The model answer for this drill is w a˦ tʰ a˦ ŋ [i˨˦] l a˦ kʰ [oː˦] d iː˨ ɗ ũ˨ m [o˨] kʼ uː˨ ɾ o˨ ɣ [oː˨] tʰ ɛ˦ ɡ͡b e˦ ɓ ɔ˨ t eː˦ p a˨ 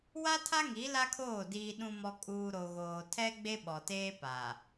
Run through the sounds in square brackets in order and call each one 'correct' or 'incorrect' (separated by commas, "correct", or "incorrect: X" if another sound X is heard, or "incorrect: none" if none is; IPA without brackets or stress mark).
correct, incorrect: oː˦˨, incorrect: ɔ˨, correct